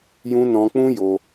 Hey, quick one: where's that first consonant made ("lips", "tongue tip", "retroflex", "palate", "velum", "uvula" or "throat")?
palate